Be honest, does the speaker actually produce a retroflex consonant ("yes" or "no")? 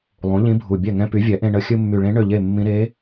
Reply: yes